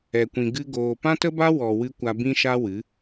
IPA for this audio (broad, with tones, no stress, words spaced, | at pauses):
ɛ˧kʷĩ˧ ɡɨ˦ɡoː˧ pã˦tə˦ba˦ wɔ˨ wɨ˧ kʷa˧bĩ˦ʃa˦wɨ˨˦